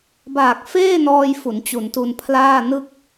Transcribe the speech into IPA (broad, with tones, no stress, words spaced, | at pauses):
baː˨˩k̚ feː˥˩nɔː˧j fu˩˦nt͡ɕu˩˦ntu˧npʰlaː˥˩ nɯ˥˩k̚